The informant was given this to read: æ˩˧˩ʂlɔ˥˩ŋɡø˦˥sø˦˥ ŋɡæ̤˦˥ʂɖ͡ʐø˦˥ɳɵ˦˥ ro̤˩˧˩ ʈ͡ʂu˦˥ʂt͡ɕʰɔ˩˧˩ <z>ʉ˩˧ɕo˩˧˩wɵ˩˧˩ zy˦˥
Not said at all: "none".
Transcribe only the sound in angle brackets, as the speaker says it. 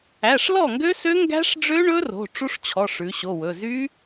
ʂ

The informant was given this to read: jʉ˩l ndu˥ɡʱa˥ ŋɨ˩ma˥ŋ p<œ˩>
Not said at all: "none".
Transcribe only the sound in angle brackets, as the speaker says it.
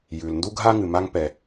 ɛ˩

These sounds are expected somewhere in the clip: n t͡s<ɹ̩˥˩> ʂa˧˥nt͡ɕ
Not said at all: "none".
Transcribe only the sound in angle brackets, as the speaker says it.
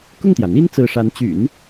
ɹ̩˥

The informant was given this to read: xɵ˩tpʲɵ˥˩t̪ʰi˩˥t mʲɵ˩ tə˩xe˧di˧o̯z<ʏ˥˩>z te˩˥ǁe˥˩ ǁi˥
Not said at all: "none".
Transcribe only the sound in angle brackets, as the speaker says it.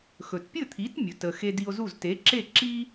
u˥˩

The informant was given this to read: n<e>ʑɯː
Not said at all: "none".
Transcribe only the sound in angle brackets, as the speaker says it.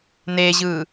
e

